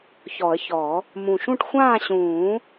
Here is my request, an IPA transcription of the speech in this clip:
çɔ˨˩˦ə̯çɔ˨˩˦ | mũ˨˩ʃũ˥˨ʈ xʷãː˥˨ɕũː˨˩˦

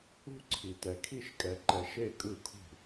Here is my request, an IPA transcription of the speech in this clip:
ṳ˥˨ǀʰi˨tɛ˨kʰi˥˨ʃ kʼɛ˨ǃɛ˨ ʃe˥˨kʼɯ˥˨kʰṳ˥˨

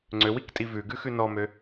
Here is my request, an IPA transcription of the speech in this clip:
ŋ͡ǀøwiktʼi vʉɡʉxʉ nɔmø

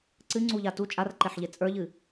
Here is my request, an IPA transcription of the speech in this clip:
ǀɨŋ͡ǀuʎa tu t͡ʃʼarǃeħʎe t͡sʼə˞ʎɨ

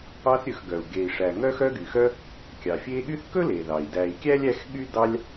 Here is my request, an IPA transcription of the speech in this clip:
ɑ˦θɾʲɵ˨x ɡœ˩u̯ɡe˨i̯ʂæ˨ ŋœ˦xœ˦ɡy˩xœ˦ | kʲɑ˩fʲe˦ɠy˥θ kɵ˥le˩ðɑ˩i̯ dæ˨i̯kʲæ˥lʲ æ˦xɠy˥dɑ˦lʲ

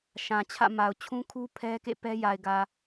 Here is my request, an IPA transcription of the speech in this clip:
ʃã˨t͡ɕʰä̰˦˨ma˨ʊ̯ t͡ɕʰũ˦kʰu˦ pʰɛ˦ kḛ˦˨pɛ˦ja˨ɪ̯ɡä˨

